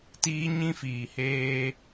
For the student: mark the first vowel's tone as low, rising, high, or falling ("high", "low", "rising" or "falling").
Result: high